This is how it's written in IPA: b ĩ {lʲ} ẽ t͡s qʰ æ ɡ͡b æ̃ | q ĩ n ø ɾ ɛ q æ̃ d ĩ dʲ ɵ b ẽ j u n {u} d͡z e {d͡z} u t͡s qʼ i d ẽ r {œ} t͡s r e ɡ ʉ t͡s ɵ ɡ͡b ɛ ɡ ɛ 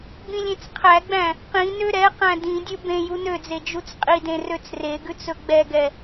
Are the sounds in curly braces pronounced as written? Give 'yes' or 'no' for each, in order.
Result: yes, no, no, no

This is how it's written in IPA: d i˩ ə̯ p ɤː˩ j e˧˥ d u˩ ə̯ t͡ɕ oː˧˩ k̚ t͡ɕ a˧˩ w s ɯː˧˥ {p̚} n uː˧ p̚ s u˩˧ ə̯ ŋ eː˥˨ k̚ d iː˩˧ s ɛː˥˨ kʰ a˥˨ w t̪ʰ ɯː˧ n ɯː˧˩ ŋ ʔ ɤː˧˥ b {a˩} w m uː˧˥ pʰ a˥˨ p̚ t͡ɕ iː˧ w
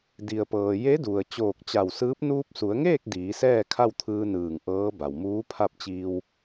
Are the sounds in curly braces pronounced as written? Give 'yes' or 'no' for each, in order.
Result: yes, yes

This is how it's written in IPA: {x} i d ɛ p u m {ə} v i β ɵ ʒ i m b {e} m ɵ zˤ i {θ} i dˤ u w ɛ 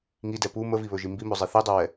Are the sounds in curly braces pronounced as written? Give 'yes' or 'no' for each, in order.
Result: no, yes, no, yes

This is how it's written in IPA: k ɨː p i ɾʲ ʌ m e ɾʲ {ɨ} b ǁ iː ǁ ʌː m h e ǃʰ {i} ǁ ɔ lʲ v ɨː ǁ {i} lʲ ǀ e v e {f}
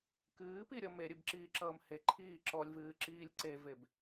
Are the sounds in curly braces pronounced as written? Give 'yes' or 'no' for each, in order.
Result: yes, no, no, no

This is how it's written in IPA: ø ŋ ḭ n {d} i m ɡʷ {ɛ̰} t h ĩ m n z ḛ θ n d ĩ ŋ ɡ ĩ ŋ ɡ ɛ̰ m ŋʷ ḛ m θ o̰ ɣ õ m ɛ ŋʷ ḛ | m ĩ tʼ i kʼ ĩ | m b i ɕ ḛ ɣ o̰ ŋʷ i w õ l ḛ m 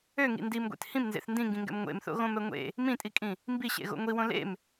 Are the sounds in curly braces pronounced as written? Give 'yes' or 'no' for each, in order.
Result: yes, no

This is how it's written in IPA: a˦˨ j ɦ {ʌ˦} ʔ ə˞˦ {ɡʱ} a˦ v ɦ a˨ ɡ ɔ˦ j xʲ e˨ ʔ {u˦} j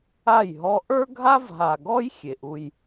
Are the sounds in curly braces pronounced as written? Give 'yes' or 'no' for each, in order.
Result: no, yes, yes

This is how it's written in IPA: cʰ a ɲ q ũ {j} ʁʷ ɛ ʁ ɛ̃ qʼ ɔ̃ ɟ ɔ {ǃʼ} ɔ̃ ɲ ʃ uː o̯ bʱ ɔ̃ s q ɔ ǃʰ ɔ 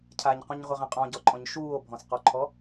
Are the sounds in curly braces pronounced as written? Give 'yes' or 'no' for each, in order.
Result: no, yes

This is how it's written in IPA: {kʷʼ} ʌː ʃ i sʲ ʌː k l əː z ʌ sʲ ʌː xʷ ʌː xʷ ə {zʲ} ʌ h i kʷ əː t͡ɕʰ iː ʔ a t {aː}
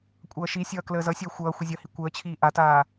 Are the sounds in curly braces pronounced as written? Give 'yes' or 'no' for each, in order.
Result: yes, yes, yes

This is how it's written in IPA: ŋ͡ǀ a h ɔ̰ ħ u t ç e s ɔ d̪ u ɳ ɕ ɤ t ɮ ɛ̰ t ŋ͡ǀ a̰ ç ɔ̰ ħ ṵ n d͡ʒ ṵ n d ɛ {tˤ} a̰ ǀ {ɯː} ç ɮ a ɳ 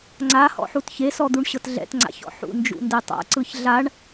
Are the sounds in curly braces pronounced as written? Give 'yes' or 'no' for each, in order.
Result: yes, no

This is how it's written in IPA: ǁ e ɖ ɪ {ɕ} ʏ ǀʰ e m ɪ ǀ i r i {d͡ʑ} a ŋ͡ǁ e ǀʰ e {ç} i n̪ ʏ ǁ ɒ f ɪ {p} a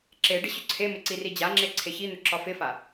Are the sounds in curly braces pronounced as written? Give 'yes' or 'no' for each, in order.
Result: yes, yes, yes, no

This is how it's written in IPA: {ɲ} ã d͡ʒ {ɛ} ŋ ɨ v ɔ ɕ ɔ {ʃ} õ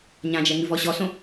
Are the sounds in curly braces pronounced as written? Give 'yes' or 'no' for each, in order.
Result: yes, yes, no

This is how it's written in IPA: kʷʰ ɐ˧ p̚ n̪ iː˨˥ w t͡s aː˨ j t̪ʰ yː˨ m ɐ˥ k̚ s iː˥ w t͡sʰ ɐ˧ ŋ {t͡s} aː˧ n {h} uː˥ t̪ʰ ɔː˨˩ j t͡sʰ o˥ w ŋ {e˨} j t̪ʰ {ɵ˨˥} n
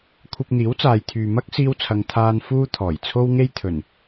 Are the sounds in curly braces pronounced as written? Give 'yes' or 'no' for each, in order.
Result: no, no, no, no

